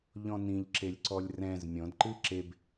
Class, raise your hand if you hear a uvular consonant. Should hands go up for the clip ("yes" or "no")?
no